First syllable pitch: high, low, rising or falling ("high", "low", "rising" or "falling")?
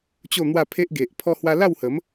falling